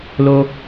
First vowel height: mid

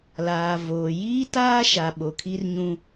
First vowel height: low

